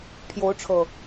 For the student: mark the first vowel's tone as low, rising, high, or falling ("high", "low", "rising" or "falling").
rising